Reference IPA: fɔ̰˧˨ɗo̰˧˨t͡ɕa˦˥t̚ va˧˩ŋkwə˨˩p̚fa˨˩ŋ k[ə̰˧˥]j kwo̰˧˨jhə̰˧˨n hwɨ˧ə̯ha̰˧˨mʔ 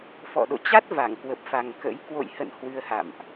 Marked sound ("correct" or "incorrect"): correct